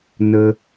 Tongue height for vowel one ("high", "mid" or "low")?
mid